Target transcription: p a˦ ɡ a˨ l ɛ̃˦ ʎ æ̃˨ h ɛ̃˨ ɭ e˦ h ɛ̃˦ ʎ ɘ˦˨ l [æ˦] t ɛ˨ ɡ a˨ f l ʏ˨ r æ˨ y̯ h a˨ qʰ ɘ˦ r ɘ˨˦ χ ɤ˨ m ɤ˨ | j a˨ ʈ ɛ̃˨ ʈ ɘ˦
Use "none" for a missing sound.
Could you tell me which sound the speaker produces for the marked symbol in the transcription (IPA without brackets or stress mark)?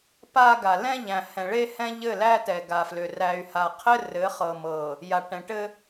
æ˦